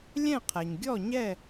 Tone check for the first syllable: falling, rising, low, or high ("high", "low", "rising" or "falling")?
falling